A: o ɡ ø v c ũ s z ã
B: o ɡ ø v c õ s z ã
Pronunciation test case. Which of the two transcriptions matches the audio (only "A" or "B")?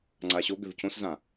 B